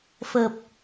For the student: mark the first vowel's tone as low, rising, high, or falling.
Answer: low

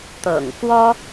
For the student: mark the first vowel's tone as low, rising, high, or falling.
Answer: low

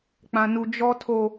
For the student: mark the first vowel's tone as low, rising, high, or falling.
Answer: high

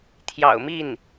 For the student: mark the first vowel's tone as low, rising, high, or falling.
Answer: low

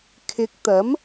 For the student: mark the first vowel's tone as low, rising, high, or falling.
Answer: rising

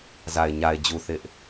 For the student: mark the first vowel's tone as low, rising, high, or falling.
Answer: low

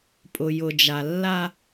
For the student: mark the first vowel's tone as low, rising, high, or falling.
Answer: low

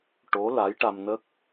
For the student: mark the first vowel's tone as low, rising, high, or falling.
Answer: rising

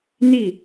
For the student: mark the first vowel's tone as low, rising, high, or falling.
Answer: falling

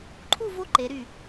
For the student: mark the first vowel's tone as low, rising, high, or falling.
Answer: falling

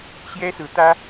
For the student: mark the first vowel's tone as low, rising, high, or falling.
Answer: high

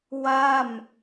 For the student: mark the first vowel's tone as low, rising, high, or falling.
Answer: falling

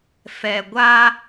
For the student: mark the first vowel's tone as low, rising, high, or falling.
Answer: low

